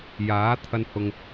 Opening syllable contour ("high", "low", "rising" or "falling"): rising